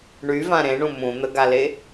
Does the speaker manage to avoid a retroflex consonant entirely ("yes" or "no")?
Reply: no